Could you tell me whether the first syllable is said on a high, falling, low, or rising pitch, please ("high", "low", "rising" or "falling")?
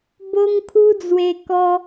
high